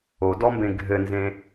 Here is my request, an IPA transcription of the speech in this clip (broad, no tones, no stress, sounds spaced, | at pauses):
o d ɔ m b ẽ ɡʱ ɘ n z ẽ